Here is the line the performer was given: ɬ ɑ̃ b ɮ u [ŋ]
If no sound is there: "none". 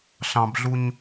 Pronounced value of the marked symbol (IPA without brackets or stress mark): ɲ